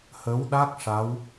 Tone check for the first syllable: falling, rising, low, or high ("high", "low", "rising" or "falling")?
rising